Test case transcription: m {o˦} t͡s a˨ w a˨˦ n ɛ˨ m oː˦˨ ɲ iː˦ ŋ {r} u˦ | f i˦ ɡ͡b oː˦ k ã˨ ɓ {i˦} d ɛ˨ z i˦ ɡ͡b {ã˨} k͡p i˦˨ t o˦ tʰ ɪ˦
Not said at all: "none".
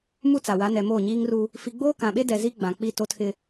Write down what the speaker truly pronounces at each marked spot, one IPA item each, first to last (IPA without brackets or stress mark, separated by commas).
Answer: u˦, r, e˦, ã˨